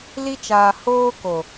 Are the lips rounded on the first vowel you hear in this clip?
no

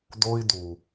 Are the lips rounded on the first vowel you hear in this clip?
yes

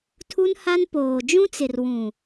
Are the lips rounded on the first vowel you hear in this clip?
yes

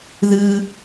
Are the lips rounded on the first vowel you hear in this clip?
no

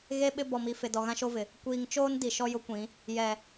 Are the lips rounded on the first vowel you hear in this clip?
no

